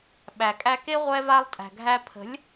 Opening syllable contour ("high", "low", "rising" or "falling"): low